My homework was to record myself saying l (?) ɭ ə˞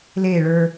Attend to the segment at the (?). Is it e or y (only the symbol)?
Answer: e